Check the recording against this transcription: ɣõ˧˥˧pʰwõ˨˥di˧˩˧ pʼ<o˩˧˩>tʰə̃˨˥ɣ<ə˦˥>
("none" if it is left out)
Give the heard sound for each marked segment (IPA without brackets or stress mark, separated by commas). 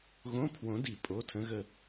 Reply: o˩˧˩, ə˦˨